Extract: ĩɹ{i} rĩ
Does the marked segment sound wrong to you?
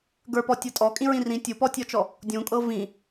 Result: yes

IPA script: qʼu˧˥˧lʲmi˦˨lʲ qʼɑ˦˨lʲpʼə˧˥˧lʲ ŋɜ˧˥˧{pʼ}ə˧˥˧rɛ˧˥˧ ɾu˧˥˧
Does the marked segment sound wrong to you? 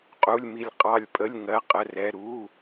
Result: yes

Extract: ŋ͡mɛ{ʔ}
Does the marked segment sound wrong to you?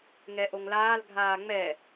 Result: yes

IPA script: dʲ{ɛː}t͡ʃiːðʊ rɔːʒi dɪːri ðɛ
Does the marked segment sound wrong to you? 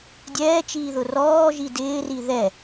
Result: no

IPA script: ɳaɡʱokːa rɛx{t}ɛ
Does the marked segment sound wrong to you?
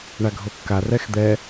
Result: yes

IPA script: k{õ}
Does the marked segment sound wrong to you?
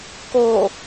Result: yes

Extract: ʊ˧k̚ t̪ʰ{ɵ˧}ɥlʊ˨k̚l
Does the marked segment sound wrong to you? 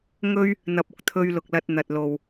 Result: no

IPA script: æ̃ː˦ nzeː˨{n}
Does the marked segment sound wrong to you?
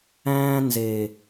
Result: yes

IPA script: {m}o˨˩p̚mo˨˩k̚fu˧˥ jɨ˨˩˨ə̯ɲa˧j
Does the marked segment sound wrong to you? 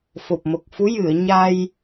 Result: yes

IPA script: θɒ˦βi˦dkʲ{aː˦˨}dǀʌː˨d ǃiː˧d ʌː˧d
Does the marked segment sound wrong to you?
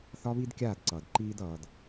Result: no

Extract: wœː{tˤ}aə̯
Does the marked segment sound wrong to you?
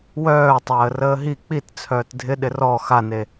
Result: no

